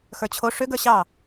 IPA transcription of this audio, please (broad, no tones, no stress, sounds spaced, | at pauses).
x ə˞ t͡ɕʰ o ʂ ʏ ɡ ə˞ ɕ ɑ